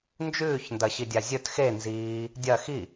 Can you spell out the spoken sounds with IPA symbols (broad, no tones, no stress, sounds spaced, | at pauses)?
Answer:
n d͡ʒ ʉː ç n d ɐ ɕ i dʲ a zʲ ɵ t x e n z iː | dʲ ɐ x i